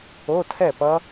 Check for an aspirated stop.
present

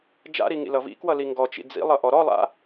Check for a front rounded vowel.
absent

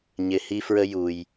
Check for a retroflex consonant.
absent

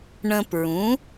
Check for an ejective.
absent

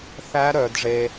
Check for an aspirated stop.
absent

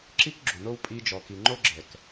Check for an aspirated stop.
absent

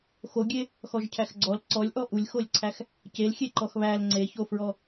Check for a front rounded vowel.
absent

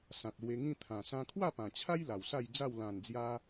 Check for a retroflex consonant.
absent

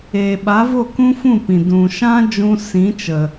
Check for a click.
absent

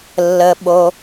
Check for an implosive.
present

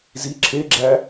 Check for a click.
present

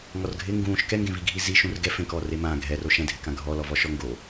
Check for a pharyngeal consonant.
absent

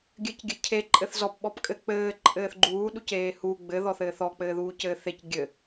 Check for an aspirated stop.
present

